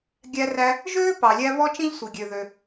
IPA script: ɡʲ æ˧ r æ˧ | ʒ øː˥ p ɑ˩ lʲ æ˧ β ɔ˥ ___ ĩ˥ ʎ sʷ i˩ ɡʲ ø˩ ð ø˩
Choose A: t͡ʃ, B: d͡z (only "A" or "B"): A